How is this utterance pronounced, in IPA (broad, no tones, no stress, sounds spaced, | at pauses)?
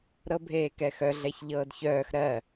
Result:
ɾ ɤ bʱ eː k ɛ x œ ɮ ɛ ç ʎ ɤː d ç œː x ɾ ɜ